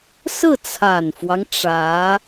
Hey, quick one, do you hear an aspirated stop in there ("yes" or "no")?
yes